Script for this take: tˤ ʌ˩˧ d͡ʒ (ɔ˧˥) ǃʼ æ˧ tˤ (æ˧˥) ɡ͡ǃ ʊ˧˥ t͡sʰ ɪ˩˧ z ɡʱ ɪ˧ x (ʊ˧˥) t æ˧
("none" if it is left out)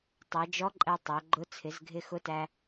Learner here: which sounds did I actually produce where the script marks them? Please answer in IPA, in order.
ɔ˧˥, æ˩˧, ʊ˧˥

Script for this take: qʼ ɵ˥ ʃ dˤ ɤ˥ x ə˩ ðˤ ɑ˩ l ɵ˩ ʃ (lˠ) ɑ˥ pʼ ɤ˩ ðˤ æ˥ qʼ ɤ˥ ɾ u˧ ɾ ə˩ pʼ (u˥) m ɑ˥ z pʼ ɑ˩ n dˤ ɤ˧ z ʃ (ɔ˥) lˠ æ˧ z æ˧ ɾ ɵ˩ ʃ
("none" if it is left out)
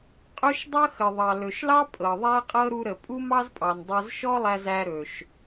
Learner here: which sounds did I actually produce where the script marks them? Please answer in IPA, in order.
l, u˥, ɔ˥

